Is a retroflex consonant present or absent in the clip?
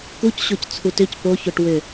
present